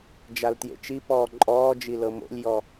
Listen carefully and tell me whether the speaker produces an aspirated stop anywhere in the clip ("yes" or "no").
no